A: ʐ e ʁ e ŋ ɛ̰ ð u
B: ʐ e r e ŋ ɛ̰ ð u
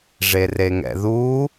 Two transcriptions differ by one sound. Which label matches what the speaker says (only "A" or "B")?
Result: B